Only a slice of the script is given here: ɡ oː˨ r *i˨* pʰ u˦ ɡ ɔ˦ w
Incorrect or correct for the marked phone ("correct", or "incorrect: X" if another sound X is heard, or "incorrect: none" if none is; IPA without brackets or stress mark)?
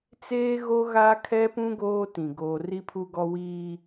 incorrect: i˦